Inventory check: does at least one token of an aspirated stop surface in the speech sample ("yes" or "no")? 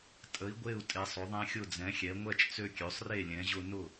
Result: no